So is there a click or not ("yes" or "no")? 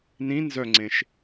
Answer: yes